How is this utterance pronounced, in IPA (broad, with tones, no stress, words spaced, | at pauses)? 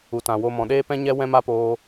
u˨tã˨wo˧mɔ̃˨ ɗeː˦pɛ̃˦ɲɛ˦ wɛ̃˦ma˦poː˧